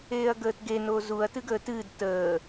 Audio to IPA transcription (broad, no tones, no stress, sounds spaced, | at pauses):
eː ɐ̯ ɡ əː t ɡ e n o z u ɐ̯ t ɨ ɡ əː t ɨː d t əː